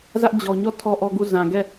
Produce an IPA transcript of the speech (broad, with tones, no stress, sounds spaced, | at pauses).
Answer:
z ä˦ ʔ d͡ʑ ɔ˦ ɲ ɔ˦˨ tʰ ɔ˦ ʔ ɔ˦ ɡ u˦˨ z ã˨ ɡ ɛ˦˨